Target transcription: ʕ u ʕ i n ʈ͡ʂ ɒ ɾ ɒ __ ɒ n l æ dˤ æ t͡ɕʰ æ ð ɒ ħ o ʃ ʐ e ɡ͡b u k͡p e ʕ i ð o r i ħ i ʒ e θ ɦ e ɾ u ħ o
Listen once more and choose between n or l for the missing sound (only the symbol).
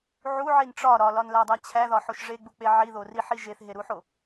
l